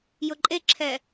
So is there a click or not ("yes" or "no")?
yes